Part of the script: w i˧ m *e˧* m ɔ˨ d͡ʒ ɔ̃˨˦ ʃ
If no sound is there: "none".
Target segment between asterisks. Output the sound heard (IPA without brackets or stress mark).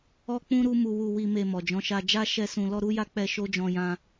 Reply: e˧